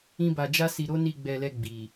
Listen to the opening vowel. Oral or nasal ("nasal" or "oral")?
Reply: nasal